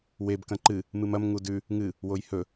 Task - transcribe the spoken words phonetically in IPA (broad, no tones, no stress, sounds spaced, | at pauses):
w e b k ɐ̃ ǃ ɨ | m ɨ m ɐ m ŋ u d ʉ | ŋ ɨ | w o j h ɵ